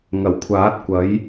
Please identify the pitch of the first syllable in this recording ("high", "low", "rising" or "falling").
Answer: low